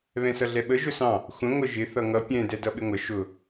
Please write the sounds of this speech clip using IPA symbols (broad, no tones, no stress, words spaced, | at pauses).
βɛ̃sʌɮɛɓə ʒʊsɑ̃ | xʷə̃ ŋʷəʒɪ θʌŋʌ pʲɛ̃ dɛdʌɓɪŋʷə ʃʊ